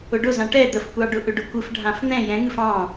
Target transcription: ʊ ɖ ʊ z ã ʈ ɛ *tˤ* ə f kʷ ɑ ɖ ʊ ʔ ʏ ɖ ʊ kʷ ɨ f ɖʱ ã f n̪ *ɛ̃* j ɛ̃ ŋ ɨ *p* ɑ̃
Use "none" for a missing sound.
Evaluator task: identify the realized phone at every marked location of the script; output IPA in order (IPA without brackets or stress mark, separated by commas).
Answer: d̪, ɛ̃, f